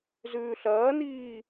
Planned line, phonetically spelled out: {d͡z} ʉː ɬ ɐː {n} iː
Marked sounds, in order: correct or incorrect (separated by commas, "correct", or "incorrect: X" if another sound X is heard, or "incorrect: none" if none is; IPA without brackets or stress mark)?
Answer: incorrect: z, correct